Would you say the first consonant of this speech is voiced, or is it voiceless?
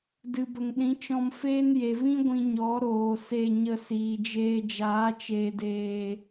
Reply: voiced